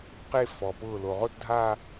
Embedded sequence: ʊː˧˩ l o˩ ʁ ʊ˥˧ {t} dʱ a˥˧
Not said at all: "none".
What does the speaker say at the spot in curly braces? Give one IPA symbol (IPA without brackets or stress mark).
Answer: t